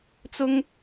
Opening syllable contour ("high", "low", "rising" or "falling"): high